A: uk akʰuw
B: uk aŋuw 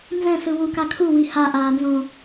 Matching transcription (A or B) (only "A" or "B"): A